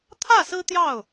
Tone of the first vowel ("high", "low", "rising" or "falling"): falling